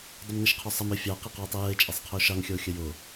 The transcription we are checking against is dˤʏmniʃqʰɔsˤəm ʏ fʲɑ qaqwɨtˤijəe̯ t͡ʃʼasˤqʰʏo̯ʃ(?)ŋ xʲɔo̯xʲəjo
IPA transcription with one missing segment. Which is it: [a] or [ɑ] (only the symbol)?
ɑ